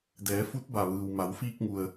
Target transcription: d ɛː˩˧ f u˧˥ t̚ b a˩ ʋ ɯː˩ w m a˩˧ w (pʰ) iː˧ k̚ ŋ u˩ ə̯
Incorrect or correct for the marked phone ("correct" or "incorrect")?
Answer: incorrect